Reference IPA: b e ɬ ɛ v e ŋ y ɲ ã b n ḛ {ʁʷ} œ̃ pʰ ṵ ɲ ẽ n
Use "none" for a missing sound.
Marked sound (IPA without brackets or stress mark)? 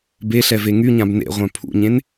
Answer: ʁʷ